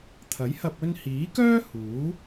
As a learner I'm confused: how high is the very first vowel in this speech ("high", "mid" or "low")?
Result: low